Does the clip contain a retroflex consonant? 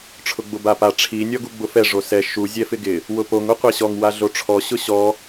yes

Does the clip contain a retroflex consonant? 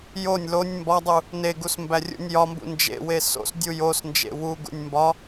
no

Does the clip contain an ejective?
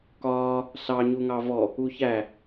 no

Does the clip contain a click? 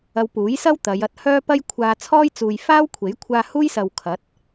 no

